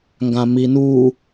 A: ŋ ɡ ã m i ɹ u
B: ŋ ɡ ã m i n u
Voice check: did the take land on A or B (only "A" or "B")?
B